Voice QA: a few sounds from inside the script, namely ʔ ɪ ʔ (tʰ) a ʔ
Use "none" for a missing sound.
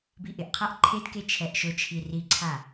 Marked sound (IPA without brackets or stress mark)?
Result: qʰ